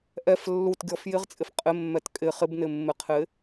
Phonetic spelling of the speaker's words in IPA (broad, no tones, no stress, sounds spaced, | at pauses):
ʔ ɛ f lː u t ɡʲ ɔ f j ɪ ʁ t͡sʼ ɪ f qʼ ɪ mː ɛ t kʼ ɪ χ ɪ b n ɪ mː ɪ qʰ ɪ